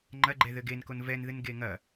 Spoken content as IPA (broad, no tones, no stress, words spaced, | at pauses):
ŋ͡ǃɐɡ͡ǃɛ ðɘɡenkon vɛnðɨn ɡeŋɐ